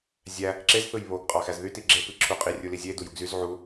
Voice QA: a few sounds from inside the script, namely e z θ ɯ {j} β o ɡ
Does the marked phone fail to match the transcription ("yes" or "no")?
no